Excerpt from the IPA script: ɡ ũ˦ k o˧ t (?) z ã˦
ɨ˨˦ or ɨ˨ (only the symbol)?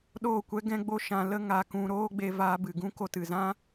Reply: ɨ˨